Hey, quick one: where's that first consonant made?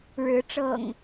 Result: retroflex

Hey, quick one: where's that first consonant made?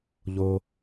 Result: palate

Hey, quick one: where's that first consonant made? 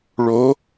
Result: retroflex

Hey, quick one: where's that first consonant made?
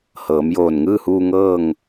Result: throat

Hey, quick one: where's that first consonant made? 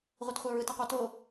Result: uvula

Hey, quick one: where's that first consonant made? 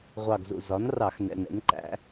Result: uvula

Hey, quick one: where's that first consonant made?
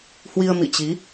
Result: throat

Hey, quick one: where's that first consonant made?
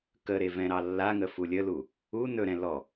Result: velum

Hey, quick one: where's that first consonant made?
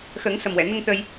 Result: velum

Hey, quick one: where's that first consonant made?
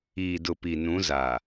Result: tongue tip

